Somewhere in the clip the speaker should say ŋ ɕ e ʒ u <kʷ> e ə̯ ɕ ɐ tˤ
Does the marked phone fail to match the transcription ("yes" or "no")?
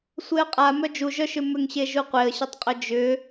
yes